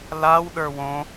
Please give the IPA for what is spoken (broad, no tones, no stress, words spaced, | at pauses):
law ɗə˞wõ